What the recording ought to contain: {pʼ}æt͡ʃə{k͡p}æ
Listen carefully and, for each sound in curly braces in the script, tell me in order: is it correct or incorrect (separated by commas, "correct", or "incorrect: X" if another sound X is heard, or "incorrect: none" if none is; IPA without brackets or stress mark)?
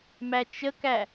incorrect: m, incorrect: k